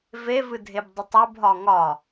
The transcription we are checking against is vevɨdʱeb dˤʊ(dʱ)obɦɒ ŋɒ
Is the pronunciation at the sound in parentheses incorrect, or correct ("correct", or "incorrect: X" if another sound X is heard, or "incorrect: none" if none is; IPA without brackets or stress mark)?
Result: incorrect: tˤ